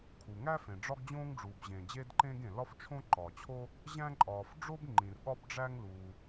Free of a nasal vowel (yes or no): no